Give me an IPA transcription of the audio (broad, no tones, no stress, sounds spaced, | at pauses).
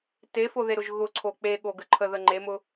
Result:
t e f o ð e ɾ ʊ ʒ ɣ ʊ ǀʰ o k͡p e ɠ o ɡ ə ǃʰ ə ð ə ŋ͡ǃ e m ʊ